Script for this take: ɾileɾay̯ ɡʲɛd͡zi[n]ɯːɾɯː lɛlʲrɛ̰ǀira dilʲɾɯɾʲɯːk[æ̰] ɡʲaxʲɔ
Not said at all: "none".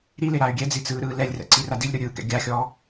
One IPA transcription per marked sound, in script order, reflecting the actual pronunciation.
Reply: t͡s, ɛ̰

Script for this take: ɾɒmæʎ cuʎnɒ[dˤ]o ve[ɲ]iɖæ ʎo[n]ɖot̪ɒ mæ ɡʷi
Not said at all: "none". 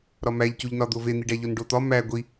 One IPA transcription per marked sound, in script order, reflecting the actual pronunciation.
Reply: d̪, n̪, n

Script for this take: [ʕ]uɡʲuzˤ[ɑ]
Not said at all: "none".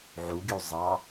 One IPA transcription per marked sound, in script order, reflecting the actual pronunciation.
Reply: ʕ, ɑ

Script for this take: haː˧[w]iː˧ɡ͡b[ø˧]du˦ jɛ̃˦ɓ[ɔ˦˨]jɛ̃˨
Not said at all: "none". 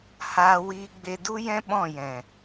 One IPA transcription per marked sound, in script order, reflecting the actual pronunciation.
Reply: w, e˧, ɔ̃˦˨

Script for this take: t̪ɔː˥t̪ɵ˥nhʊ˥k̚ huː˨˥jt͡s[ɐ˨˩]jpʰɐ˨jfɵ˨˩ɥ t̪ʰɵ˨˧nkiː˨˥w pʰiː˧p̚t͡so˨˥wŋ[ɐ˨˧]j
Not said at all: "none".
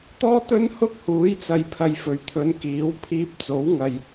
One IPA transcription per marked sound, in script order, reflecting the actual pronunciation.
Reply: ɐ˨, ɐ˨

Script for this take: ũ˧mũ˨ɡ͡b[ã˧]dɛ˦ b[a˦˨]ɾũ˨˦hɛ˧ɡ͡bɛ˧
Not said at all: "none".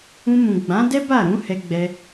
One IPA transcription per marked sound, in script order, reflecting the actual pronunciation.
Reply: ã˨˦, a˦˨

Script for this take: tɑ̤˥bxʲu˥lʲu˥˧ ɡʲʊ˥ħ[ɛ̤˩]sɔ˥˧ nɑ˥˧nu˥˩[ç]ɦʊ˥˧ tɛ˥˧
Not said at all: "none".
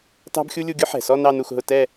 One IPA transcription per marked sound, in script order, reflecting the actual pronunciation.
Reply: ɛ̤˩, x

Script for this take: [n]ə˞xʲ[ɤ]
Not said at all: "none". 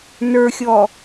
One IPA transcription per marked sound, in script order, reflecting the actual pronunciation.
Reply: n, ɔ

